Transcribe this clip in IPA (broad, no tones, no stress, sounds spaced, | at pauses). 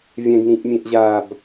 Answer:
vʲ ɛ̃ ɡ n ĩ ʔ mʲ ẽ ʔ ʑ aː b